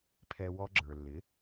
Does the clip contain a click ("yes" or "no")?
yes